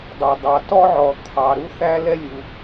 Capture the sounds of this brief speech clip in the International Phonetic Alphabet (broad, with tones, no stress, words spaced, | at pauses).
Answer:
dˤʌ˩ dˤɑ˩tɔ˥ʕɔ˩ t̪ʰɑ˩ ɾu˥θæ˥lɛ˥ lʲu˩